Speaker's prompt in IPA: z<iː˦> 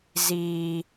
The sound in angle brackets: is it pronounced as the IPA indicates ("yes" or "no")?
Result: yes